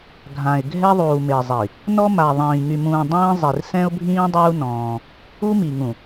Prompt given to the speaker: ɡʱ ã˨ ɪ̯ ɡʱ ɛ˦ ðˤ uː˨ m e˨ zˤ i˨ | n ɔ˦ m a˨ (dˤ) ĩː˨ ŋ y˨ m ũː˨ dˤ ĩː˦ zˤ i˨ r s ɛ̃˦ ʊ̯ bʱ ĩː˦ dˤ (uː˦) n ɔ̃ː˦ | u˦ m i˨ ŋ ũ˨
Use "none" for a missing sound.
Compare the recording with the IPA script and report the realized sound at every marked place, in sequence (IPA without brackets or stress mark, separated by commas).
ðˤ, uː˦